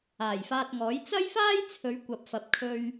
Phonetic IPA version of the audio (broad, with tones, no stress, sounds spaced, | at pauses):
aː˨˩ j f aː˧ t̚ ŋ ɔː˨˥ j t͡s ɐ˥ j f aː˥ j t͡sʰ ɵ˨˧ ɥ kʷ ɐ˨ p̚ f ɐ˨˥ p̚ kʰ ɵ˧ ɥ